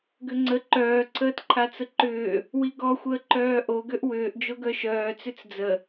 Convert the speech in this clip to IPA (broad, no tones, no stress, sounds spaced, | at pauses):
ɡ ʏ ŋ͡ǀ ə ǃ œː ǀʰ əː t ǃʰ a t͡s ə ǃ ʏː | w i ɡ ɔ xʷ əː ǃ œː ʔ o ɡ ø ʔ w ʏː ʔ d͡ʒ o ɡ œ ʃ œː t͡s ʏ t͡s d͡z ə